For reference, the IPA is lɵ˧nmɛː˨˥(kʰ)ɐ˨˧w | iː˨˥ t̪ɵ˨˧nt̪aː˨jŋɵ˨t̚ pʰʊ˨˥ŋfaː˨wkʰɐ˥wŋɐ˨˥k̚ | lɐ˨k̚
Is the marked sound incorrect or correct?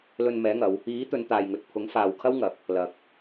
incorrect